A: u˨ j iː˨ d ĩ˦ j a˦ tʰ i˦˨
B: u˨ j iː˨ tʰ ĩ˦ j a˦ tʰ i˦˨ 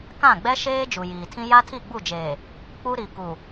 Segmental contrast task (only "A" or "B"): B